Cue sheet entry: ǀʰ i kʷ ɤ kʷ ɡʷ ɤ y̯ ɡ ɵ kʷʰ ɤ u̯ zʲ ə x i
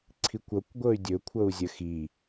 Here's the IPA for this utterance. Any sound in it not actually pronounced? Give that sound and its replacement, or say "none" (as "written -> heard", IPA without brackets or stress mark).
ɡ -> dʲ